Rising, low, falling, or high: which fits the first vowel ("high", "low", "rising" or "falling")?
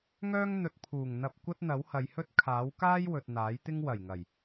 high